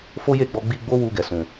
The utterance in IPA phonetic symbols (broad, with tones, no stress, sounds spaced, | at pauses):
f o˦ j e˦˨ ɡ͡b ɔ˧ ɡ͡b i˧ ɡ͡b o˦ w u˧ ɡ ɛ˨ s ũ˨